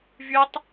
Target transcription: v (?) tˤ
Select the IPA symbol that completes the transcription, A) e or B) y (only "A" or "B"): B